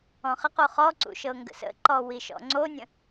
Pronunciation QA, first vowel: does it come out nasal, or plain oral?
nasal